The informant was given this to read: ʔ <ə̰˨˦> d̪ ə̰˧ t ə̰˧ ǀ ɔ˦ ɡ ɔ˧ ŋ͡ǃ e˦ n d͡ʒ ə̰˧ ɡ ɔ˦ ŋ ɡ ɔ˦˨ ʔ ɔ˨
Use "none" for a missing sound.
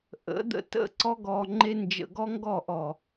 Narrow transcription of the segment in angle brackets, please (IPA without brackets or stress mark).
ə̰˨˦